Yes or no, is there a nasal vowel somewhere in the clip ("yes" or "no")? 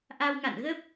no